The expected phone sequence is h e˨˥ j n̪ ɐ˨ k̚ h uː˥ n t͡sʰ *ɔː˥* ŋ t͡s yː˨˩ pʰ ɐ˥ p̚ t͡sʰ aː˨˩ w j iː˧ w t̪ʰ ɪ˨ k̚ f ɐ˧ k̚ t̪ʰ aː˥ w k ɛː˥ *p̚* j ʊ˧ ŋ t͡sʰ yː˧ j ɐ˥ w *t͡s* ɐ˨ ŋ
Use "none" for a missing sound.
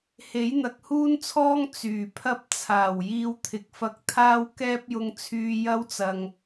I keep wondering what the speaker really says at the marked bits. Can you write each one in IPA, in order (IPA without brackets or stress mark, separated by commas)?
ɔː˥, p̚, t͡s